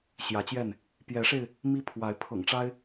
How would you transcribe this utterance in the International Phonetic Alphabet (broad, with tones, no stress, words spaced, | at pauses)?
ɕjä˨˦t͡ɕjɛ˥˨n | pjɛ˨˦ʂe˧ɪ̯ | mi˦pʰwa˨˦ɪ̯ pʰɤ̰˨˩ŋʈ͡ʂa˦ɪ̯